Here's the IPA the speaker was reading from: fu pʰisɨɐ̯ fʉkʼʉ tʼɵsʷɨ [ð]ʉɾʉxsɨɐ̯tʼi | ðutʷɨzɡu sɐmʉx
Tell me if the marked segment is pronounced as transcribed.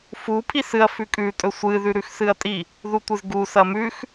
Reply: yes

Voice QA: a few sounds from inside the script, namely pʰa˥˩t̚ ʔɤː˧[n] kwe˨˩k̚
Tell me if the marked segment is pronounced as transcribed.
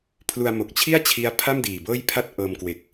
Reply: no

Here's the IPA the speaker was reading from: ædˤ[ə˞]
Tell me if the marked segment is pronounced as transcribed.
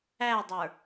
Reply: yes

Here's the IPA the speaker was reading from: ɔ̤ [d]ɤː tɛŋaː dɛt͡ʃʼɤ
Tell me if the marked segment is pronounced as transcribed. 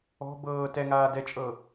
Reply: no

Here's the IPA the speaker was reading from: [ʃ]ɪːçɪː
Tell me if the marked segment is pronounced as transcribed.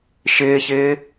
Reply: yes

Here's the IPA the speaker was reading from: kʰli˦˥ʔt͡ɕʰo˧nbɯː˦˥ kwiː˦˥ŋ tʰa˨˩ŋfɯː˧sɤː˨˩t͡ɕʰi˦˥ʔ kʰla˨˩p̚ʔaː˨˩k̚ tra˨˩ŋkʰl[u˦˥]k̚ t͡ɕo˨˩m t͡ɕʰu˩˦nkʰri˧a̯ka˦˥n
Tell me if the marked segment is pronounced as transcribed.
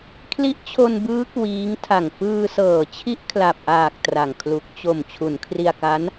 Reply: no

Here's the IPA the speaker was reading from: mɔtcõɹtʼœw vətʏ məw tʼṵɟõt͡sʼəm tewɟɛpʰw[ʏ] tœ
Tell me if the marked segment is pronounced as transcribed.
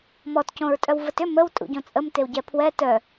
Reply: no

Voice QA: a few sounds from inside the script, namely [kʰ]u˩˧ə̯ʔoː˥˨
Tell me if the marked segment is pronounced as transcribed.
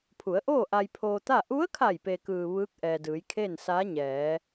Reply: no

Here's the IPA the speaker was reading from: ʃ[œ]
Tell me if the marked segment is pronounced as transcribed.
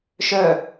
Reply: yes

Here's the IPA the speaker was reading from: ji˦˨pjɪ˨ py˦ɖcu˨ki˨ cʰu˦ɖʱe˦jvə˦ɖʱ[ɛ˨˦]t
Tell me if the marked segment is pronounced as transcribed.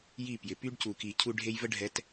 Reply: yes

